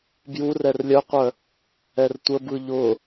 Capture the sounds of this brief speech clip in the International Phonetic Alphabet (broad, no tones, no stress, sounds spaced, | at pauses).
b j u r ɛ r lʲ œ qʷ œ | ɛ r tʷ ə b ɯ ʎ ʊ